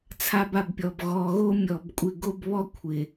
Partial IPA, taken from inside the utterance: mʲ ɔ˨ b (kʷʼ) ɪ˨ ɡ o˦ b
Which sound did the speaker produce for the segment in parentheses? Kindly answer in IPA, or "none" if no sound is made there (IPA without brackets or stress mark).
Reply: kʷʼ